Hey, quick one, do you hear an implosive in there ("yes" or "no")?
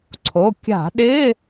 yes